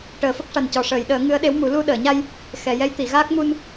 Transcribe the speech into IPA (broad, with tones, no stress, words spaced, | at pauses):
ʈəː˨˩fə˦˥k̚ʂa˨˩n cɔ˨˩ʂəː˨˩˨jɗəː˨˩˦ ŋɨ˧˥ə̯ɗe˧˥wmu˨˩˦ lu˧ ɗəː˨˩˨ɲa˧j | xɛ˨˩˨ jɛ˧˥jt̪i˨˩˨ɣaː˦˥k̚ mu˧n